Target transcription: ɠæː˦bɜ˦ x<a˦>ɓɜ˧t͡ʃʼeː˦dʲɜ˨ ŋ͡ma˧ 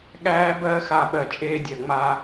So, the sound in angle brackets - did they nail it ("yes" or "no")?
yes